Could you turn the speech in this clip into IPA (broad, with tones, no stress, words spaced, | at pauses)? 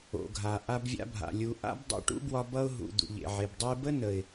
o̰˨ɡʱa˨ ʔa˧bvʲa̰˧bʱa̰˨ lʲu˨ ʔa̰˦b dˤo̰˧ʈṵ˦bwɒ˧ bʌ˧ʊ̯ ɦṵ˨ d̪ṵ˨ʎḛ˨ʕe˨bdˤu˦ɪ̯ bə˦nə˨ɪ̯